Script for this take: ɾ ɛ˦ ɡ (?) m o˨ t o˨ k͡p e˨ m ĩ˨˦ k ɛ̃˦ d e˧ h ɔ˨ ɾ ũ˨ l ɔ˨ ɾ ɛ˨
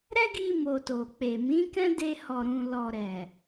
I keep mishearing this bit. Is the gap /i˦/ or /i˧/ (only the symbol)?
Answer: i˧